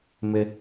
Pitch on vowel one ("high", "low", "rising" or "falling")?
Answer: high